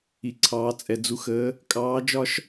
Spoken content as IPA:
i˧ǀʰɑː˧˥t͡sʼɛ˧ d͡zu˧˥xəː˧˥ | kʼɑː˧˥d͡ʒɒ˥ʃ

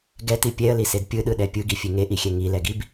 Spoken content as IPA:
ɡɛti pʲɛə̯lised pʲɯɗɯɗɛ pʲɯɡifʲe ŋeʔixʲɛ ŋilɛɡib

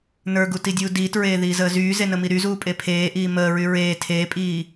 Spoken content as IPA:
nə˞ɡutidʲuː diːtɹeːðiːzəː zyːzenəmi ɾyzuːpʼe pʰeːʔiː məːɹy ɹeː tʰeːpʼiː

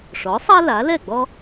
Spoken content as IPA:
ʂɔ˩˥sˤa˥ la˩˥lɛ˥˩ɡ͡bɔ˥

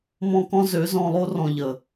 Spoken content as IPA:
mɔ̃˦kɔ̃˦ zø˨˦zɔ̃˧lˠo˦ rɔ̃˧ʎə˨

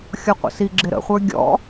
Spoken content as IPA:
xʲɔqʷə̰siɡ͡ǁɪ ɾə̰χʷə˞ ɡʲɔ̰

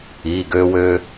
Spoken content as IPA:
i˩˧˩ɡø˧wø˧

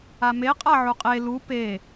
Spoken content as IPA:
ameqʼa ʕuqʼe lu pe

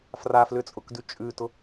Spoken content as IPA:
fraflʏt͡sʼʊkdʉ t͡ʃʼʉtʊ

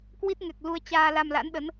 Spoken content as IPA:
kwi˦˥t̚ŋɛ˨˩k̚lu˧ə̯ t͡ɕaː˧la˧mla̰˧˥nɗə˨˦n

